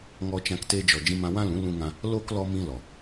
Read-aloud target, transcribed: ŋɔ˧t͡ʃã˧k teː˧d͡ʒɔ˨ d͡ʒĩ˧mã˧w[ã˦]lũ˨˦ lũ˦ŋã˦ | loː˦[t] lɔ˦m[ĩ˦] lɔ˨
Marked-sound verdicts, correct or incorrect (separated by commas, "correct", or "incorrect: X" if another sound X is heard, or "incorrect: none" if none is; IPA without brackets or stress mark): correct, incorrect: k, correct